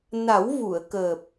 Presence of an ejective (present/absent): absent